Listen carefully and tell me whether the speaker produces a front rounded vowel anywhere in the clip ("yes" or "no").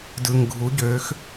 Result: yes